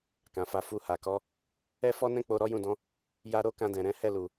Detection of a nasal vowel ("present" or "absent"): present